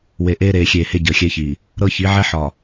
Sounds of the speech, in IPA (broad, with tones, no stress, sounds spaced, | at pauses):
w e˨ ʔ eː˦ ɾ eː˨ xʲ eː˨ h e˦ ɟ əː˨ xʲ ɛ˦ ç iː˨ | ɾ ɤ˦ ç i˨˦ ʕ ɛ˦ ħ ɒː˨